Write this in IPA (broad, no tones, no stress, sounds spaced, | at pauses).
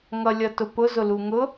ŋ ʌ lʲ ʌ t ʊ p ʊ z ʊ l u ŋ ʊ